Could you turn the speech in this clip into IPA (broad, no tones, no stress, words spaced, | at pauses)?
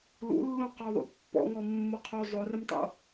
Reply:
lṵlːũ qɔðˤṵpːɔ̰ŋɔ mːoqʰo zˤorɪmtˤo̰